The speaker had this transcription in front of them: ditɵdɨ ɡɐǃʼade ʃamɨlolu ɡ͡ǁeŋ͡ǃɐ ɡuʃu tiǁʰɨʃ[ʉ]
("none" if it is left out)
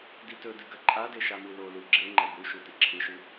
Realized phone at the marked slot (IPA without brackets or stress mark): ʉ